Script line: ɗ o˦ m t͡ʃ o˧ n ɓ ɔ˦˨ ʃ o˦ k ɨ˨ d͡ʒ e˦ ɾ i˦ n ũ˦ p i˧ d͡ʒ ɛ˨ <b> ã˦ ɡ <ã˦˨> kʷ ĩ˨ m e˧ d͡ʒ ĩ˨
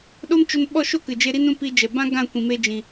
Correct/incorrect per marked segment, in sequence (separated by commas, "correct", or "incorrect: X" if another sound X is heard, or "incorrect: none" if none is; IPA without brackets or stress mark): correct, correct